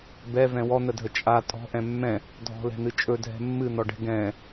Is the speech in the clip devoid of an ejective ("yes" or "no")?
no